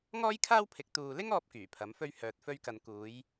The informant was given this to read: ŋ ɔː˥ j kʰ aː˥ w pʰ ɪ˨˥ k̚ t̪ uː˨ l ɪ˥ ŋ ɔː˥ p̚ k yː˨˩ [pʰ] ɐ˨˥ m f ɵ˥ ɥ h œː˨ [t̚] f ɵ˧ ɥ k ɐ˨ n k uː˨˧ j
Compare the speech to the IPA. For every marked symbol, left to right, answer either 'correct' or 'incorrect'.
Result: correct, correct

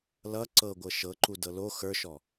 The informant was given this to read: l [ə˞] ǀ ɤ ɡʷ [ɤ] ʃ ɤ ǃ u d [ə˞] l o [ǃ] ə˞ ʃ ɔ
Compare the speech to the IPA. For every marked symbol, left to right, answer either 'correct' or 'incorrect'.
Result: incorrect, correct, incorrect, incorrect

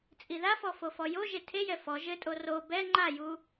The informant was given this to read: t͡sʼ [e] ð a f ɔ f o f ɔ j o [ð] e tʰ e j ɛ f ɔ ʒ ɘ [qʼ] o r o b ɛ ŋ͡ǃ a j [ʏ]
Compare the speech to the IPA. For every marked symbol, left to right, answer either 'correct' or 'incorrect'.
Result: incorrect, incorrect, incorrect, incorrect

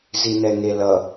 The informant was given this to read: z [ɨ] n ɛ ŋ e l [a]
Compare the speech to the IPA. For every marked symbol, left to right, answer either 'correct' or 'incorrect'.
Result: incorrect, incorrect

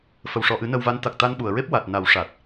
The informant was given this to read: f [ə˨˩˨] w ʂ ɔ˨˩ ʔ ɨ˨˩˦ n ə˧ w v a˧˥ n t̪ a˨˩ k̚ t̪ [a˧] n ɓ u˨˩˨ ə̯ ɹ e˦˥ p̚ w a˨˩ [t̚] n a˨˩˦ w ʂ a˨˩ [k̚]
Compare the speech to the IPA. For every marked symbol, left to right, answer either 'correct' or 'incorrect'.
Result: correct, correct, correct, incorrect

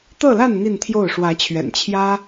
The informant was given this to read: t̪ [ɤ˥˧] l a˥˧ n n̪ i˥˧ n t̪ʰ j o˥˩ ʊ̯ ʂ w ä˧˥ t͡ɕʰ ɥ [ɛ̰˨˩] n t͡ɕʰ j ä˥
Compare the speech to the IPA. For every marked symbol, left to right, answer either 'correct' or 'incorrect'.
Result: correct, correct

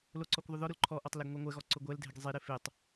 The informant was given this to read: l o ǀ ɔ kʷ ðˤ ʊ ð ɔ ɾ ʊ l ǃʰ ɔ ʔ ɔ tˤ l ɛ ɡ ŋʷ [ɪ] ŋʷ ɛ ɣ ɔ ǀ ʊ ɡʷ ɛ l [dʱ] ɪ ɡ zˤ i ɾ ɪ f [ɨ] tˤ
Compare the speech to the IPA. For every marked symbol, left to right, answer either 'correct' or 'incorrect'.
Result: incorrect, correct, incorrect

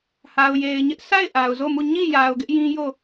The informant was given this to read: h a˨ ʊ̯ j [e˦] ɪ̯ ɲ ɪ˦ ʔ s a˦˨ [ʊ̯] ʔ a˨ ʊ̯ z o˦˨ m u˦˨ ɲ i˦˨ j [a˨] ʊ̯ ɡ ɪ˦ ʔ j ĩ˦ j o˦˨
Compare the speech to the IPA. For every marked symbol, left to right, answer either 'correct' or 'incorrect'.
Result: incorrect, incorrect, correct

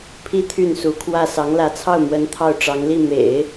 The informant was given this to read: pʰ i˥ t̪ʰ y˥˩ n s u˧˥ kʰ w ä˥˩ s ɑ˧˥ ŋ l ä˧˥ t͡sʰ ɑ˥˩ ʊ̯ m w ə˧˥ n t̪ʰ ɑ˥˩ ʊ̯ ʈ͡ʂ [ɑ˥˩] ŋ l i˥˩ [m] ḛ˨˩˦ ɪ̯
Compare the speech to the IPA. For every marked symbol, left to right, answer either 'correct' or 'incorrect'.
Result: incorrect, correct

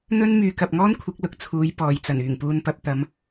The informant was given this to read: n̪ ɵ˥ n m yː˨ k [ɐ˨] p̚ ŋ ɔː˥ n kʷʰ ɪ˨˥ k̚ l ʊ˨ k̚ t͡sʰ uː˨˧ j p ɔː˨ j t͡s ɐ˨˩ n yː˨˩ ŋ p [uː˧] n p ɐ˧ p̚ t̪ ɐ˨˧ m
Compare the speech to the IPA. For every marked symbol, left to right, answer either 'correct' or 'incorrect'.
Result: correct, correct

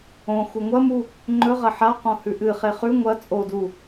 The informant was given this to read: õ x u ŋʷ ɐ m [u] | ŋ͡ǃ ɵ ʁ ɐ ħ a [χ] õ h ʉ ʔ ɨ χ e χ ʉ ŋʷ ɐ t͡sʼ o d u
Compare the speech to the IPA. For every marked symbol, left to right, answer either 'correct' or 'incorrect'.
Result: correct, incorrect

